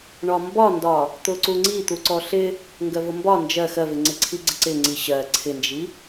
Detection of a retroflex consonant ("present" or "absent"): present